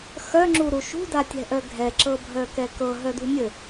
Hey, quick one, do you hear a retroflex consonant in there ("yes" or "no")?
no